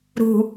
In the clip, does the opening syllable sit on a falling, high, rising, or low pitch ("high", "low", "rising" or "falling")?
low